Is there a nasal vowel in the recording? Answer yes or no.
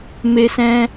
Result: yes